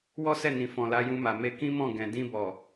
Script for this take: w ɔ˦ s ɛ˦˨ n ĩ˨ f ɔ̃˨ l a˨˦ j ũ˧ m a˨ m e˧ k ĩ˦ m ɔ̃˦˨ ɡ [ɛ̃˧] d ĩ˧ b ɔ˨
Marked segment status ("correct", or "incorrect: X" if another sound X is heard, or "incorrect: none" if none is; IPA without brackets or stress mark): correct